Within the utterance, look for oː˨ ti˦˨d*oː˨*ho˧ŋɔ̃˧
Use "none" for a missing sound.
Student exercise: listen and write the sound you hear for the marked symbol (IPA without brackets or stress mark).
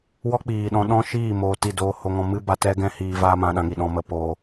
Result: oː˧